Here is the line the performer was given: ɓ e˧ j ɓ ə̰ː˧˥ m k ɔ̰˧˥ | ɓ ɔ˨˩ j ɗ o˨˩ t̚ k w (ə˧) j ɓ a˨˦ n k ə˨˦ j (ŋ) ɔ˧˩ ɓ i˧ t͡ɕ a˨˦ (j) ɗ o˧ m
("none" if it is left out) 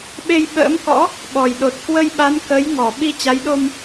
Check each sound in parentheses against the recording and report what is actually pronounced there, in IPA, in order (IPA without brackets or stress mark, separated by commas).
ə˧, ŋ, j